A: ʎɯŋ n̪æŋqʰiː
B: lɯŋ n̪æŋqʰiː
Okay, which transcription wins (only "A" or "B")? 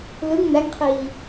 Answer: B